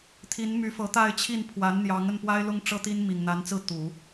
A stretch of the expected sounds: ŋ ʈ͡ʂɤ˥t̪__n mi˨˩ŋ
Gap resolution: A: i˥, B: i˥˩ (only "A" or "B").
A